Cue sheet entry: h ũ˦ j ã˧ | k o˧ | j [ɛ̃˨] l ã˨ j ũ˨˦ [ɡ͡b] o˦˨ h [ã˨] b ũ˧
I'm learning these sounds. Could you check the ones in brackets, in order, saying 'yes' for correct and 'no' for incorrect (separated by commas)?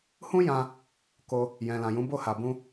yes, no, no